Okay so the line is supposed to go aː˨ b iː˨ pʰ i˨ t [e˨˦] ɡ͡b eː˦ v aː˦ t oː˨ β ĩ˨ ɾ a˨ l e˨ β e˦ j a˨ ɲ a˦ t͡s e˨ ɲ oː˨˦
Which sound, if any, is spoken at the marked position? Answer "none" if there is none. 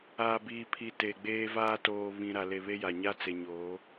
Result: e˨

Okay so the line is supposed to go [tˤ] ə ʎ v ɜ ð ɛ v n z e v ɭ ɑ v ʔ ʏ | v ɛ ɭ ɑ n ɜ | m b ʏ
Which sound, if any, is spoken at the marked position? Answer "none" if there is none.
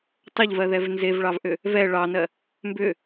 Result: tˤ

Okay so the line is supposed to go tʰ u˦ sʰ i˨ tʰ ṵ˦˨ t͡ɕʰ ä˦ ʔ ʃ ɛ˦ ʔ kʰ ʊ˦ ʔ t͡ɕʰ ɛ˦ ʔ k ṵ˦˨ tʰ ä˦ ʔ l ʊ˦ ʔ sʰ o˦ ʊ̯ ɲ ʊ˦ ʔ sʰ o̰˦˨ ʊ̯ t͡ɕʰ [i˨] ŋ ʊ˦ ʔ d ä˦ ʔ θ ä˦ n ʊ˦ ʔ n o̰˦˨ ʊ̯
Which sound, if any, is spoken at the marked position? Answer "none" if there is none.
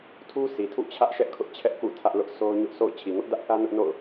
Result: i˨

